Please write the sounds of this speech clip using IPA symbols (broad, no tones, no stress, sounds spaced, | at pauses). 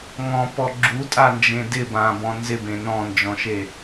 ŋ ɔ̃ p ɔ ɡ͡ǁ u tʼ a n d͡ʒ ẽ d ɪ b ã b ɔ̃ n z ɪ b ẽ n ɔ̃ n d͡ʒ ɔ̃ ʃ e